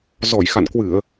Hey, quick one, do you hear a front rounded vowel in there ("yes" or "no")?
no